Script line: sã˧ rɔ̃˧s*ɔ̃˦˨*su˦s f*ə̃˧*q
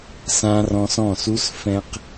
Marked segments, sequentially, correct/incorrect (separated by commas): correct, incorrect